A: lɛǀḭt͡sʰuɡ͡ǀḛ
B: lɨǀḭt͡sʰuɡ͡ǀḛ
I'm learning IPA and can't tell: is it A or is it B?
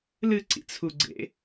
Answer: B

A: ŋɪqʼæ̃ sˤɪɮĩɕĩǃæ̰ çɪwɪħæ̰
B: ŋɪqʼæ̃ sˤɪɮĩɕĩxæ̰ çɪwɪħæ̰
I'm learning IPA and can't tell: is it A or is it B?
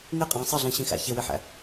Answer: B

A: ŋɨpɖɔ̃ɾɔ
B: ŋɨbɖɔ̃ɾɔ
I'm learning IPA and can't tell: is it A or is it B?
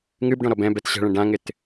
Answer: B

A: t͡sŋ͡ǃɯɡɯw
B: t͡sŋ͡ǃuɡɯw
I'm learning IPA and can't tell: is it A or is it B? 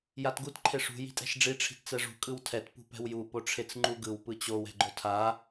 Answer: B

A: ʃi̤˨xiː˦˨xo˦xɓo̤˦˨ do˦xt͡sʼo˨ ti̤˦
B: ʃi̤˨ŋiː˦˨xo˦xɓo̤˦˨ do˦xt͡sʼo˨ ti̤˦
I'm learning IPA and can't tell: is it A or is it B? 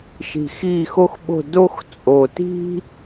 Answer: A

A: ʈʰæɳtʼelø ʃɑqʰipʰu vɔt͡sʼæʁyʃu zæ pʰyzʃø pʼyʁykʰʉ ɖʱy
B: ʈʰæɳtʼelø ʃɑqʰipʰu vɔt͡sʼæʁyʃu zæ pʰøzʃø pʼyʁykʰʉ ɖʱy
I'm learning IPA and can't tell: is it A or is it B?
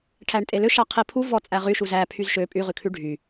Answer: A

